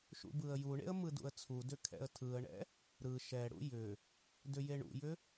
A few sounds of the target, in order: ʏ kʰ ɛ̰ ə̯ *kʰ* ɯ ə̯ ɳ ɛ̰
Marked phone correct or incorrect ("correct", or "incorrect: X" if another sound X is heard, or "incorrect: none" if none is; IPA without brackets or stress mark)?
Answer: incorrect: tʰ